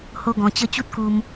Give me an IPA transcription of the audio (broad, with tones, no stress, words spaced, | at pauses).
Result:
ho˦ɡɔ̃˧t͡ɕə˦ t͡ɕu˦t̚ku˧m